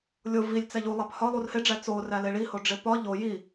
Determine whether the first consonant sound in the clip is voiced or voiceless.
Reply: voiced